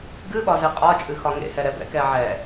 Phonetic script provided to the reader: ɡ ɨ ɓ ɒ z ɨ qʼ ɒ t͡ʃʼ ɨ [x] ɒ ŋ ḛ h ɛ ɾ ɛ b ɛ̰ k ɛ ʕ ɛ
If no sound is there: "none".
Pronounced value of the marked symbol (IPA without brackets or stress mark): x